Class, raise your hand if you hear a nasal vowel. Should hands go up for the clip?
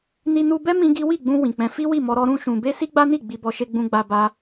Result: yes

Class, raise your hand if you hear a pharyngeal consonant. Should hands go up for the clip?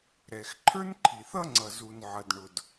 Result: yes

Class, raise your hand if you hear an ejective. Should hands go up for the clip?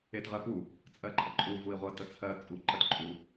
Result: yes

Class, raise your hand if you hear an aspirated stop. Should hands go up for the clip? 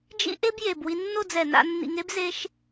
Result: no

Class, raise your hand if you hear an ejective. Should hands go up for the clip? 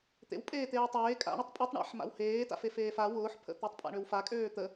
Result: yes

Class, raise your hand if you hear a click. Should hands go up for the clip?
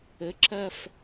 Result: yes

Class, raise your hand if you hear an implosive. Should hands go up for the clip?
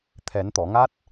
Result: no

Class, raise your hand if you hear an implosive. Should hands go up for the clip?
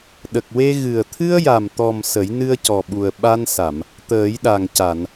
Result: yes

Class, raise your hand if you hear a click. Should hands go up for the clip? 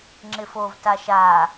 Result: yes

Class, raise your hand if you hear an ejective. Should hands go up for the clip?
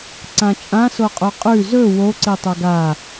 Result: yes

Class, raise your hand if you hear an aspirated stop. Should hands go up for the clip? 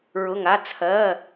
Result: yes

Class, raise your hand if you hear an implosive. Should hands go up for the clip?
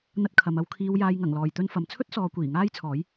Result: no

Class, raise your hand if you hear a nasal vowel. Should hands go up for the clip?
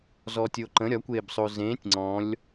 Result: yes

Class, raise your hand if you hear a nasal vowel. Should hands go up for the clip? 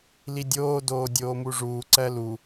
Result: no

